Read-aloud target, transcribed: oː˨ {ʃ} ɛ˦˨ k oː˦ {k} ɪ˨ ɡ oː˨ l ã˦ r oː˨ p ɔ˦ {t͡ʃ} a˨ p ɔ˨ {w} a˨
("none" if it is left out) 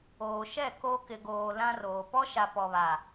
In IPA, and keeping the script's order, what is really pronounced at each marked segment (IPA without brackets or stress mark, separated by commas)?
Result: ʃ, k, ʃ, β